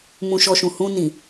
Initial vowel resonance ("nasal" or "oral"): nasal